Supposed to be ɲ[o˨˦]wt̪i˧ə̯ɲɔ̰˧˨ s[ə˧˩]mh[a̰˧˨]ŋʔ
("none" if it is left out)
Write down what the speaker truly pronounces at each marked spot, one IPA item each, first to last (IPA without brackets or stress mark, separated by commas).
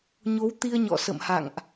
o˨˦, ə̰˧˨, a̰˧˨